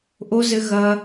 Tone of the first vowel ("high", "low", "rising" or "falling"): high